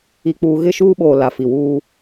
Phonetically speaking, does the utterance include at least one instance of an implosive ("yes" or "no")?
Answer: yes